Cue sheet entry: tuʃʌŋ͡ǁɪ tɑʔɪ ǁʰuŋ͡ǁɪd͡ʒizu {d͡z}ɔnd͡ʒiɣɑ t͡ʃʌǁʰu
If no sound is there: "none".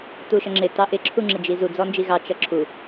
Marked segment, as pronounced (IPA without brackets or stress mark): d͡z